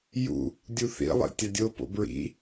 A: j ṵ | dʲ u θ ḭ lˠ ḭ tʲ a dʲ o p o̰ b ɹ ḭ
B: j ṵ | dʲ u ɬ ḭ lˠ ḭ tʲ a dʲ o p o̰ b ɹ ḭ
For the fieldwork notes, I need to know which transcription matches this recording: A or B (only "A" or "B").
A